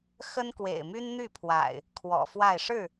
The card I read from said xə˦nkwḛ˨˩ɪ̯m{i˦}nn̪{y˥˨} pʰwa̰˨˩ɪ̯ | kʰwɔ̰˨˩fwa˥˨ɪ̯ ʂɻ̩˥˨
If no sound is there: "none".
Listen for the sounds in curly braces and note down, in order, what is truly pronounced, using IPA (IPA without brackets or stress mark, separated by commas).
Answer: y˦, y˥˨